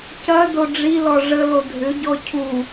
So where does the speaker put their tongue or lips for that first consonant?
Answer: palate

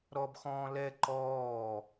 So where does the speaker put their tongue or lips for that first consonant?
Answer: tongue tip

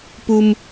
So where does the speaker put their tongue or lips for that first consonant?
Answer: lips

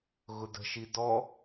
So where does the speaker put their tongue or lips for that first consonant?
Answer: velum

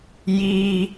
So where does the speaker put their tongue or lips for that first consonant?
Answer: palate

